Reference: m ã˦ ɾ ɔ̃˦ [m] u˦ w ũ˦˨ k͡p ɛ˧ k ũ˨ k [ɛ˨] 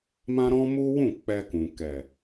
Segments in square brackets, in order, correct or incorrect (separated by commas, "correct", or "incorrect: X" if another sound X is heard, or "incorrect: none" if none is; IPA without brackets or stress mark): correct, correct